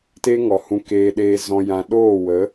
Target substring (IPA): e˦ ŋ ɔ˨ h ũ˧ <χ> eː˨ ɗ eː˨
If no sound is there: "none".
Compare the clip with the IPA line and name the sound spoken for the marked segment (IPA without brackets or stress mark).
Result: k